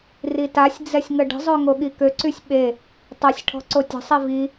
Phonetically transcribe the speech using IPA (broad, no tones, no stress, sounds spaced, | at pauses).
r i t a sʲ d͡z ɛ sʲ ŋ ə ɖ ə̤ zˤ ø ŋ o ɠ i k ø ǀ y sʲ ɓ e | tˤ ɛ sʲ ʈʰ ɔ̤ ǀ o tʲ ə̤ sˤ i v i